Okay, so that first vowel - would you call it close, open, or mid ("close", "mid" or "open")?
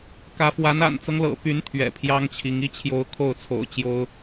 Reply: open